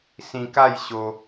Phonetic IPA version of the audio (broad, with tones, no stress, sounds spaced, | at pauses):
s ĩ˧ k a˥˧ j ɕ o˧